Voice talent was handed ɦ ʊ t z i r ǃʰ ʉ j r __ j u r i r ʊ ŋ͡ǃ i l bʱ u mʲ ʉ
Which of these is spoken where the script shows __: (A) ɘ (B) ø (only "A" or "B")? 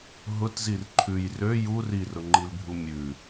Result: B